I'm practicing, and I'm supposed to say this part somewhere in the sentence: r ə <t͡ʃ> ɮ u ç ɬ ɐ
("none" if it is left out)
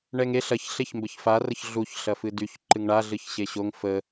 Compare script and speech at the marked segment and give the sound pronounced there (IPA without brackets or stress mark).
ç